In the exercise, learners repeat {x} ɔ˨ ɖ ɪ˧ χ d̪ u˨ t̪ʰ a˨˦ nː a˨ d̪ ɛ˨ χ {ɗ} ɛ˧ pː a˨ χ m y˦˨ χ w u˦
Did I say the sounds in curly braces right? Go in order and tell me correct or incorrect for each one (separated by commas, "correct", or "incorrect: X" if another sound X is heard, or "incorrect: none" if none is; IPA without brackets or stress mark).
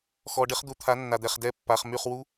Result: correct, incorrect: d